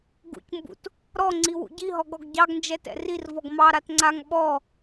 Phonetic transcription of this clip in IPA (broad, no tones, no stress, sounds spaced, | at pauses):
ɡ ṵ c m b ṵ t | ɾ ɔ ŋ͡ǀ i w ṵ ɟ i ɦ ɔ ɡ ɔ ɡ ɟ ɑ ɡ n d͡ʒ ɛ t ɛ̰ r i r v ɔ ɡ m ɑ ɾ a t ŋ͡ǀ a ŋ ɓ ɔ